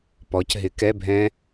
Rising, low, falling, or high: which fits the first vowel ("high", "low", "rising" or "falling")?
rising